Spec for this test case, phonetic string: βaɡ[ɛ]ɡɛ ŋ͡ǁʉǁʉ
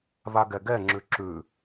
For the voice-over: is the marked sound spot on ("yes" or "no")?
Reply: yes